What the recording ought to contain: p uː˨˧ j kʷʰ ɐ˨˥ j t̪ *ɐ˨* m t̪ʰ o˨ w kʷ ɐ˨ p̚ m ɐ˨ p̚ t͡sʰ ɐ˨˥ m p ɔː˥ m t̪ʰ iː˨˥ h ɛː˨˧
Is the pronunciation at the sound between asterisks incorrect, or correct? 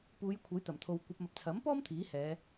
incorrect